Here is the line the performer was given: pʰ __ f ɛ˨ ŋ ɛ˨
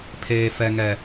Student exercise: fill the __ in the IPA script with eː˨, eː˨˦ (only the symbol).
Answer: eː˨